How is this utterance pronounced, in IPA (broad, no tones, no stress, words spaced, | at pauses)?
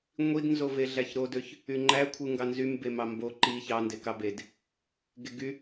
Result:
ŋʷidnzo veɮæçɾodøç | yŋ͡ǃæ kʷʰɯŋɡɑnzym bemɑmbo ǃi çɑnde kɑbed | ɡeɡy